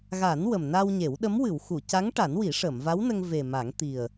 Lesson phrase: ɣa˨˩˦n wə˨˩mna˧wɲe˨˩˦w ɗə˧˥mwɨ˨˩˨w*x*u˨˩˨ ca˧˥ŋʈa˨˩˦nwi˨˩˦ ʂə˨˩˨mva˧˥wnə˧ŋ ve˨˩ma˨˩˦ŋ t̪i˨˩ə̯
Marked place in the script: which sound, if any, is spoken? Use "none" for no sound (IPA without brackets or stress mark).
x